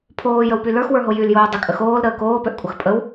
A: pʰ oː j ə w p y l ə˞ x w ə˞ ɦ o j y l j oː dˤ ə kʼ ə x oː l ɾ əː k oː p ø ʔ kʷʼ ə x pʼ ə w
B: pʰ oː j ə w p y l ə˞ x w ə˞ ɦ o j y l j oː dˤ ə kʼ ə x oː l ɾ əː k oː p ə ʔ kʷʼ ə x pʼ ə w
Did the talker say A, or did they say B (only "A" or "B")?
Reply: A